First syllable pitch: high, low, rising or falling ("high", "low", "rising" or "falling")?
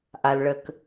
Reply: low